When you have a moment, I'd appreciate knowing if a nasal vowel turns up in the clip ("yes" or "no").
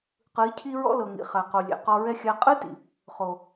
no